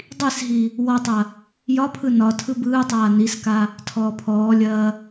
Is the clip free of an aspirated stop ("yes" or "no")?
no